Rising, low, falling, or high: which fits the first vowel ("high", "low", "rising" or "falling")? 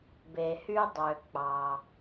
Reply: low